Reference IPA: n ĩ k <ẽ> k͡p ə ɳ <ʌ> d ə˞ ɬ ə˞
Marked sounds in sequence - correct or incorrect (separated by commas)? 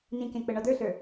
correct, incorrect